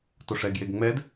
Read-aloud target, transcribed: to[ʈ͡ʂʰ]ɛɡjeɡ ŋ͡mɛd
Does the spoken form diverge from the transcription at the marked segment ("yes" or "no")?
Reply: yes